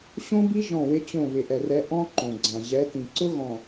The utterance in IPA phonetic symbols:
ɕ õ˦ b i˦ ʒ ɔ̃˦˨ w ɪ˦ t͡ɕ õ˦˨ β ɪ˨ ʔ ɛ˨ r ɛ˨˦ ʔ ɔ̃˦ ǃ õ˨ ɡ͡ǀ ã˨ ʑ ɛ˨˦ t ĩ˨ ǀ ʊ˦ ɣ ɔ̃˨

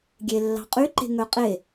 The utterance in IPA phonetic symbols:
ɡʲ e lː ɑ̤ qʼ y ǃ e̤ ŋ œ qʼ e

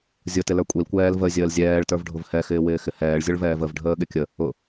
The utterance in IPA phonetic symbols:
zʲ ʊ t ɪ l ə˞ kʷʼ i l kʷ ɛː l v ə zʲ əː l zʲ ɛː ɭ t ə˞ v ɖʱ ʊ v h ɛ x ɪː w ɪː x ɪ h ɛː ɭ zʲ ʊ ɭ v ɛː v ə v ɖʱ əː ɠ ɪ kʲ ə | ʊ

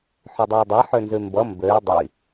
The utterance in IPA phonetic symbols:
ħ ø dˤ ɜ i̯ dˤ ɛ ħ ø n z ʉ m b ʌ m b ø y̯ dˤ ə i̯

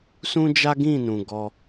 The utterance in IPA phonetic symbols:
s ũ˦ d͡ʒ a˦ ɡ ĩ˦˨ n ũ˨ ɡ ɔ˧

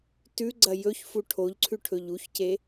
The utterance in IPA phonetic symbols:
t ʉ ɡ͡ǀ ɐ j ɵ ç f u ʈʰ o ʎ ǀʰ ʉ ʈʰ ɵ ʎ u ç c e

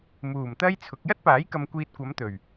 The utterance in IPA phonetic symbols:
m uː˨˩ m t̪ ɐ˥ j t͡sʰ ʊ˨˥ k̚ j ɐ˥ t̚ p aː˨˥ j k ɐ˨ m kʷ iː˨ t̚ kʷ ɐ˨˧ m t̪ ɵ˨˩ ɥ

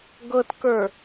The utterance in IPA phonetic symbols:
ɡ ɤ t k ə˞

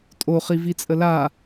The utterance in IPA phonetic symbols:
tʼ o χ i v i t͡sʼ ə l a

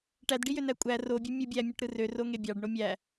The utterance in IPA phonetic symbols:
ʈ æ d ɖ i j ø n æ kʷʼ æ r o bʲ ø mʲ ɯ bʲ æ mʲ o ʈ ɾ ɯ r ø r o ŋ e bʲ ɑ ɖ ɳ o mʲ æ

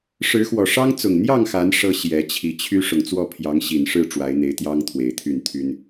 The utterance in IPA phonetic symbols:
ʂ ɻ̩˨˦ x w ɔ˨˩ ʂ ɑ˦ ŋ t͡s ʊ˨˩ ŋ n̪ j ɑ˥˨ ŋ x a˨˦ n ʂ ɤ˦ ɕ j ɛ˨˦ t͡ɕʰ i˨˦ t͡ɕʰ y˦ ʂ ʊ˨ ŋ t͡s w ɔ˥˨ pʰ j ɑ˨˦ ŋ ɕ i˨˩ n ʂ ɻ̩˥˨ ʈ͡ʂ w a˨˦ ɪ̯ n̪ e˨˦ ɪ̯ t̪ j ɑ˦ ŋ t̪ʰ w e˨˩ ɪ̯ t̪ʰ y˥˨ n t̪ʰ y˦ n

